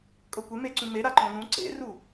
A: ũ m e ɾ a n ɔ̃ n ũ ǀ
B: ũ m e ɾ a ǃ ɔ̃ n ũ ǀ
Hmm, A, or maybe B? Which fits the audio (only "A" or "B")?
B